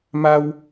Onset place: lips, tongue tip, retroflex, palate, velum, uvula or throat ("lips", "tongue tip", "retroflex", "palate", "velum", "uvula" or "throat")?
lips